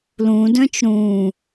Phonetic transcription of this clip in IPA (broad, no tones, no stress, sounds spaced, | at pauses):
l ũ d œ̃ t͡ʃ ɾ ũː